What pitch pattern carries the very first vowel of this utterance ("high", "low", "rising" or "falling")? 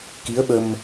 rising